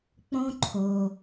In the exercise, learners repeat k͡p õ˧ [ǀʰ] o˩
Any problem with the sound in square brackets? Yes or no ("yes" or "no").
yes